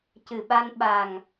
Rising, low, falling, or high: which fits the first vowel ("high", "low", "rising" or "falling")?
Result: low